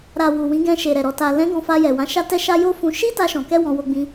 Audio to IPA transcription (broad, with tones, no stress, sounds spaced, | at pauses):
ɾ a˨ w u˨ w ĩ˨˦ ɡ ɛ̃˧ ʃ e˨ ɾ ɛ˨ ɾ ɔ˨ t a˨ l ɛ̃˨˦ ɡ ɔ̃˧ f a˧ j ɛ˨ w ã˨˦ ʃ a˦ t ɛ˦ ʃ a˦ j o˦ f ũ˧ ʃ i˦ t a˧ ʃ ɔ̃˨ k ɛ˧ w ɔ̃˧ w o˧ ɡ͡b ĩ˧